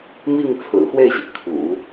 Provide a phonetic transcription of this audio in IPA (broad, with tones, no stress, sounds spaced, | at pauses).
m i˥˩ ŋ t͡sʰ ɹ̩˨˩ x w e˥˩ ɪ̯ ɕ i˩ kʰ ṵ˨˩˦